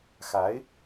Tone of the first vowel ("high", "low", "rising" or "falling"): rising